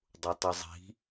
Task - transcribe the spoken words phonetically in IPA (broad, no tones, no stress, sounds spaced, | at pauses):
dˤ u tˤ ɯ zˤ i̤